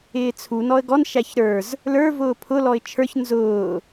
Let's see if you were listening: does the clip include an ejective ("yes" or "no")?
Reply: no